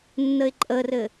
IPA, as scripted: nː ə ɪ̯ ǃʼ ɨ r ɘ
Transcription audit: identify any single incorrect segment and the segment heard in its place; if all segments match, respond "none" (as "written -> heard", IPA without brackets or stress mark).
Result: ɨ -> ə